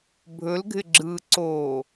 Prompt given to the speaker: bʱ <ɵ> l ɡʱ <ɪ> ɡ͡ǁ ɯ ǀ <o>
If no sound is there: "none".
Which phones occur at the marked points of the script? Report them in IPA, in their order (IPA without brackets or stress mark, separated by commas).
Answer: ɵ, ɪ, o